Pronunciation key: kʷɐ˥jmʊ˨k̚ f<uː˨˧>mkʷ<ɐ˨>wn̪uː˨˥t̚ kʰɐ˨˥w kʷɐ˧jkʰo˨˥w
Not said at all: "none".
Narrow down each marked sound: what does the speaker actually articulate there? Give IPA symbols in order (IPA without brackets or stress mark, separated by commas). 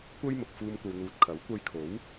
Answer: uː˧, ɐ˨